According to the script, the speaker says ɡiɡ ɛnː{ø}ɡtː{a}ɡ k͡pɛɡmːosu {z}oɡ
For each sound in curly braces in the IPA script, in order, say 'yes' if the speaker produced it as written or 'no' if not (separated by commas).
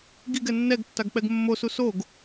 no, yes, no